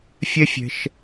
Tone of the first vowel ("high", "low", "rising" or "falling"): high